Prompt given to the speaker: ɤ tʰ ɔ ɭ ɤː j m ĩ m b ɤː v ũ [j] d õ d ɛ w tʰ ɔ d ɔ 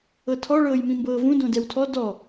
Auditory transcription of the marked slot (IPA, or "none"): none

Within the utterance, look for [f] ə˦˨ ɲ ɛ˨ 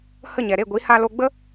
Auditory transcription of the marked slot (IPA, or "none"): h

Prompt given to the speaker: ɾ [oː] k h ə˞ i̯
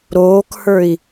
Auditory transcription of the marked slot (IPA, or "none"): oː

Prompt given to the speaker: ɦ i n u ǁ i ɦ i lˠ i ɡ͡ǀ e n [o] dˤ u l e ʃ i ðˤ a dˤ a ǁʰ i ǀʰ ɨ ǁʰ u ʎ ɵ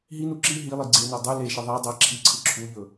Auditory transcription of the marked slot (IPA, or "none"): o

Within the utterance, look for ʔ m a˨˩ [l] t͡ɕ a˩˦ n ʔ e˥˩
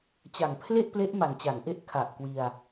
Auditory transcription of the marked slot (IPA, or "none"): n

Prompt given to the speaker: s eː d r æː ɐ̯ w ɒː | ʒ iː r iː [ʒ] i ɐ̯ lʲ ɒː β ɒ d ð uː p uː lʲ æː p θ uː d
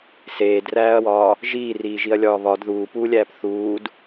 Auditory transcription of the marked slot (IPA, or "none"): ʒ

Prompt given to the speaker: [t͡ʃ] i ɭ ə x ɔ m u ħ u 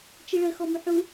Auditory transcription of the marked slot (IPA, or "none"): t͡ʃ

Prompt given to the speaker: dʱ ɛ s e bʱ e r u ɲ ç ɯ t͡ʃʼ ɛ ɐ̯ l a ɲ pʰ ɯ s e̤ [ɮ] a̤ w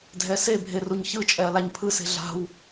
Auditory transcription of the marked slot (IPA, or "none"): ɮ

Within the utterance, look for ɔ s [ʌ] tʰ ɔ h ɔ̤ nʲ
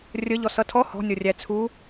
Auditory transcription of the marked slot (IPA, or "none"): ʌ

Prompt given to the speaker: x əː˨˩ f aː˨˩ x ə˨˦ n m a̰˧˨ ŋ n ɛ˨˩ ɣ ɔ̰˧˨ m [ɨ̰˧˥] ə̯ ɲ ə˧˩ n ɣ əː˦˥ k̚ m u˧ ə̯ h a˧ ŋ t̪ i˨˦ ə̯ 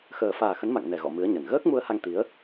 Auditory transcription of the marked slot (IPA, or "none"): ɨ˨˦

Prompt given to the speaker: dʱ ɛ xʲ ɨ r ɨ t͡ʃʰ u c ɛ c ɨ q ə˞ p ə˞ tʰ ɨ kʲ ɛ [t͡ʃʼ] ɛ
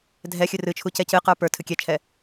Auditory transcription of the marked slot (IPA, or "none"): t͡ʃʰ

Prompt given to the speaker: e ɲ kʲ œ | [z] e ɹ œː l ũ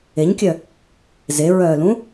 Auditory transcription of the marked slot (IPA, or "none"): z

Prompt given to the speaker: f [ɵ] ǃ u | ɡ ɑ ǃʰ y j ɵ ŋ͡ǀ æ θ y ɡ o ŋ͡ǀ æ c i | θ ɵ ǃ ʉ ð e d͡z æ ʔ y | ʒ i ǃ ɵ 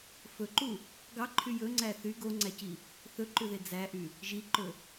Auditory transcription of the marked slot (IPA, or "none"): ɵ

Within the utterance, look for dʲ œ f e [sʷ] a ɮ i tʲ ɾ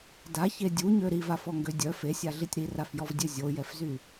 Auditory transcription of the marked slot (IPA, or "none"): sʲ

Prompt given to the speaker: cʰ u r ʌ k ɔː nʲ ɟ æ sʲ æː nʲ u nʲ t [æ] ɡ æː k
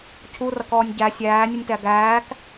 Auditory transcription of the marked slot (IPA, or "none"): æ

